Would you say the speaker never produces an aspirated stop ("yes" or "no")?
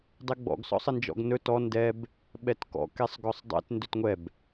yes